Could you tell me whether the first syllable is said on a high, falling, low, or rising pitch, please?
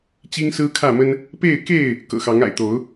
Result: high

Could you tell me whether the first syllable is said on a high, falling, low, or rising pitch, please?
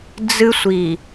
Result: high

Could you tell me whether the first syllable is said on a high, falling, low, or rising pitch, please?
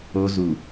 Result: high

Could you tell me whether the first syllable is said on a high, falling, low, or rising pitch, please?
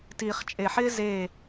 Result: low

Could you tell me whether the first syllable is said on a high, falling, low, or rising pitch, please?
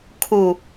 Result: low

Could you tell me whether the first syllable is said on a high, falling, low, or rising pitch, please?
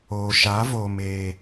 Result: low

